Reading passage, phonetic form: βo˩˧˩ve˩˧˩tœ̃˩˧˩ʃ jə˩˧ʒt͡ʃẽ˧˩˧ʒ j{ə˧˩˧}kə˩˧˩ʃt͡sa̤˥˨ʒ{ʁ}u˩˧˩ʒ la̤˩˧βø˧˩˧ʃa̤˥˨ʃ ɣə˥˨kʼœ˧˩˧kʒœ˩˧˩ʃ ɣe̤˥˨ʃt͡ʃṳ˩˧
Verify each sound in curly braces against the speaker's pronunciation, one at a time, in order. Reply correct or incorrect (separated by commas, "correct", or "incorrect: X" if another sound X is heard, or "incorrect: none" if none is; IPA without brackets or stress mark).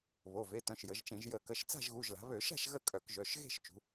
correct, incorrect: ɣ